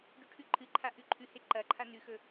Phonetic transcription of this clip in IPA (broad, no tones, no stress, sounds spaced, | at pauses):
ɖ ʉ ʈʰ ʉ ǃʰ ɨ ǃʰ a ʔ ʉ ǃʰ ʉ h e ǃ ɐ ǃʰ a n ʉ x ɵ